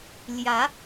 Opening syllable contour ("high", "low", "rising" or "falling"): rising